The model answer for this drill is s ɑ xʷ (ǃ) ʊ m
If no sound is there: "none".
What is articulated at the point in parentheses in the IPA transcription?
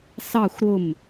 ɾ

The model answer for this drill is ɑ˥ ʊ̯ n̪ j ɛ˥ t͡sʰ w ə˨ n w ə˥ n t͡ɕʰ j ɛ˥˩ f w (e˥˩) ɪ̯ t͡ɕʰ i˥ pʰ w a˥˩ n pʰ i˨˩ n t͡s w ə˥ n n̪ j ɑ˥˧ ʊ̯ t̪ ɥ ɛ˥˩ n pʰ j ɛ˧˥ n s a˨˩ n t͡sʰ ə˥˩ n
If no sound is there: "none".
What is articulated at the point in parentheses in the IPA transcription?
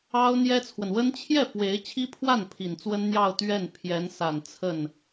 e˧˥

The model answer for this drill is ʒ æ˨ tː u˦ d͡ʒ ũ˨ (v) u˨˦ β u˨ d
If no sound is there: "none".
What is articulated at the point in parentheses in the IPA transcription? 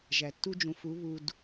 f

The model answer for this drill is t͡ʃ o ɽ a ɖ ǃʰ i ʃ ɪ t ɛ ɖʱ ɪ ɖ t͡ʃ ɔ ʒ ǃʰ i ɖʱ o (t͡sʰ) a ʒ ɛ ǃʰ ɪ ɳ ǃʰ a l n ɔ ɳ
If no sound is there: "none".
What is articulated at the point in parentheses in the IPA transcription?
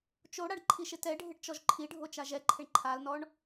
t͡ʃ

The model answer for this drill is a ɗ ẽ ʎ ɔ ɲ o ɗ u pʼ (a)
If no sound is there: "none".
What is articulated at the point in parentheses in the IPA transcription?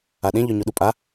a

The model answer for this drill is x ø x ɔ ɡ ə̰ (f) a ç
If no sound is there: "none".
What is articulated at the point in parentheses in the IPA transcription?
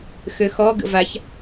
v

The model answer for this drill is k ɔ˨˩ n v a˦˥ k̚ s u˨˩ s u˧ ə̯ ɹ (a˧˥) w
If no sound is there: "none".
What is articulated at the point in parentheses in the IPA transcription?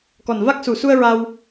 a˧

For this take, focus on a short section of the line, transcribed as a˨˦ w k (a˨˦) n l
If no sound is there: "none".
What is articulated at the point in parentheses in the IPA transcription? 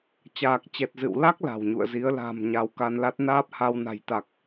a˧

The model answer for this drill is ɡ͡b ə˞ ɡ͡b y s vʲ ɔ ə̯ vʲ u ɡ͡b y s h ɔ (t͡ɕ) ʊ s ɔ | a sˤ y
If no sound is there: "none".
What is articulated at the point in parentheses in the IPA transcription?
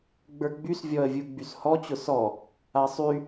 t͡ɕ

